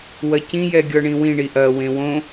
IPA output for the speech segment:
w ɐ c ĩ j ɛ ɡʲ ɔ ɳ ĩ w ĩ ɳ i ʔ ɐ w ẽ w õ

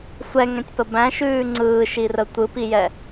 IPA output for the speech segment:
sʷ ɛ ŋ ɛ̃ tʲ p ə b æ̃ ʃ ʉː ŋ͡ǀ ɯː ʃ i r ə tʷ ɯ p i j ɛ

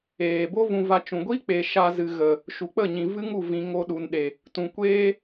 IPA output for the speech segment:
eː˨ b o˦ v ũ˧ v a˧ t͡ʃ ũ˨ ɡʷ i˦ k͡p e˨ ʃ a˧ z ɨ˨ ɣ ə˨ | ʃ u˨ k͡p ə˦˨ ɲ ĩ˨ v ɨ˦ ŋ u˦˨ v ĩ˨ ŋ o˧ ɗ u˨ n ɗ e˨ | t ũ˨ kʷ eː˦

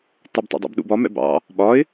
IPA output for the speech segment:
t ɒ b tˤ ɛ̰ dˤ ṵ b ɗ ṵ b ɒ m ɛ̰ b ɑ̰ | ɓ ɒ ɪ̯

